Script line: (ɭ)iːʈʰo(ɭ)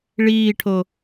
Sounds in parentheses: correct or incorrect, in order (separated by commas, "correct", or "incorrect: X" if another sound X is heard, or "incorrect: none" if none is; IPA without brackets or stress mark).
correct, incorrect: none